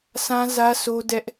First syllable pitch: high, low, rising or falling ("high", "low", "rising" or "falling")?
high